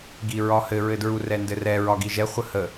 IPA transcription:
ɡiɹɒhɘɹɘ dɹurɛndɘrɛ ɹɒɡiʒɛ χʷəhə

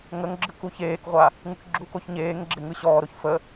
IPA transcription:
ŋəŋɡ͡ǁɯk uçeːkʁʷa | ŋɯkɡ͡ǁukoç ɲeːŋɡ͡ǁe ŋɯɕɔːɾoç fə

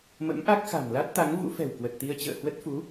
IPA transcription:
mə̰˧˥mʔa˦˥k̚ xa̤˨˩mla˦˥t̚t̪a˨˦ŋvṵ˧˥ fɛ̤˨˩wkwə˨˩t̚t̪i˧ə̯ t͡ɕə̰ː˧˨hwə˦˥t̚fu˨˦

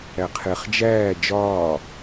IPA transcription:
æqʰeχ d͡ʒæː d͡ʒɒː

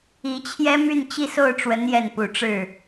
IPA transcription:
i˧˥t͡ɕʰjɛ˥ my˥˧nt͡ɕi˥˧so˥˩ʊ̯ʈ͡ʂwə˧˥n jɛ˥˩npu˨˩ʈ͡ʂɻ̩˥˩

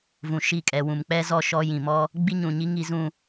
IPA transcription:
vũ˨ʃi˦˨kʼɛ˨ wũ˨mk͡pɛ˦ zɔ˦ʃɔ˦ jĩ˨mɔ˦ | ɡ͡bi˦ɲũ˨ɲi˦ ŋi˦zũ˦

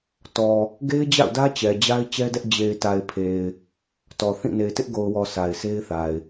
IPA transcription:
tɔ˨ | ɡe˦ɪ̯d͡ʑa̰˦˨ʊ̯dä˦ t͡ɕɛ˨d͡ʑa˦ɪ̯ t͡ɕɛ˦dɛ˦ʔ d͡ʑe˨ɪ̯ta˨ɪ̯pʰe˨ɪ̯ | tɔ˨θĩ˦˨ ne˨ɪ̯tɪ˦ʔɡo˨ʊ̯wɔ˨ sa˨ɪ̯se˦ɪ̯θa˨ɪ̯

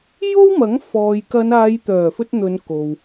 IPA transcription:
jo˥wmɐ˨˥ŋ fɔː˨j kɐ˨˧naː˨˧jt̪œː˨˩fɵ˧t̚ n̪ɵ˨˧nko˨w

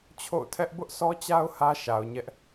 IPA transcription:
t͡ɕʰo̰˦˨ʊ̯tʰɛ˦ʔ bʊ˦ʔsɔ˦t͡ɕa˦ʊ̯ hä˦ʃa˨ʊ̯ɲɛ˦ʔ

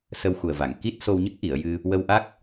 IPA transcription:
sə˧wxu˨˩ə̯va˨˩˨ŋ ki˦˥t̚ so˧wɲə˦˥k̚ʔi˨˩˨ə̯jɨ˧ | wə˧wʔa˦˥k̚

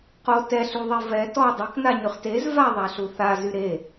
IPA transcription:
qo tɛɬyðˤe vɛ tɔ dˤɛknaɲyχ tez vaðˤaɬu θazy ɾe

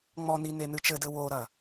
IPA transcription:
ŋ͡mɔni nenɨt͡ʃɘdɘ woɾɐ

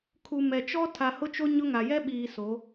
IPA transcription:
kʰu˨mɛ˨t͡ʃɔ˦ tʰa˨hʊ˦t͡ʃo˦ ɲʊ˦ŋa˨ jɛ˦ɓiː˨ so˨˦

